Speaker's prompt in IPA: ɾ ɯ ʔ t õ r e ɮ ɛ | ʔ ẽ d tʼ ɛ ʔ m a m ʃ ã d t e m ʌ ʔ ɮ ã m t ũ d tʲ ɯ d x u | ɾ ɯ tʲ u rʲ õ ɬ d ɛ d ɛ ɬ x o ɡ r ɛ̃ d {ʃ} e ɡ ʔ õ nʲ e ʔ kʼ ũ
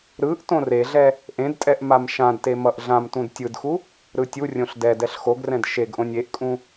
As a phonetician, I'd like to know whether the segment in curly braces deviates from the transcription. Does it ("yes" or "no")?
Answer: no